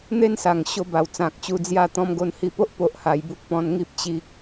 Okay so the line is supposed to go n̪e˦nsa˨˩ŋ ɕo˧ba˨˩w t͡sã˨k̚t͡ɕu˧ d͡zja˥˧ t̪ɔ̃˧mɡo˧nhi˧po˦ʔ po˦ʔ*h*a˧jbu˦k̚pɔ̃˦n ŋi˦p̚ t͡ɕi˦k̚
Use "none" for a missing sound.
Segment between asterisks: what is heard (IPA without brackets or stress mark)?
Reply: h